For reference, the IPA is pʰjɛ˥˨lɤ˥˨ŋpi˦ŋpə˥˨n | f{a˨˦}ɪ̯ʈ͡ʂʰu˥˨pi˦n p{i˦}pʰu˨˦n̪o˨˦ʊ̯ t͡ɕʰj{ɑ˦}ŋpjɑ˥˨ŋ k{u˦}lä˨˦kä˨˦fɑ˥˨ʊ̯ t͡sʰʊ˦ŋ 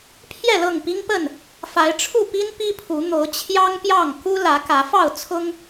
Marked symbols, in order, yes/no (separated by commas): yes, yes, yes, yes